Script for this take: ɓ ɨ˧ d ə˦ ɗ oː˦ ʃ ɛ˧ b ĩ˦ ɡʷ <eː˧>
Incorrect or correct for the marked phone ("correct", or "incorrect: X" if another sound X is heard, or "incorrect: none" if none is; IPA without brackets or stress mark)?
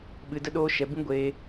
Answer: correct